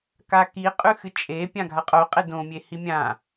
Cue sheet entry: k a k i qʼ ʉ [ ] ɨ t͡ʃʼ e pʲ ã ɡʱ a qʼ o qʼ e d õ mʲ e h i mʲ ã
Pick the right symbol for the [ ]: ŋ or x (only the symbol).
x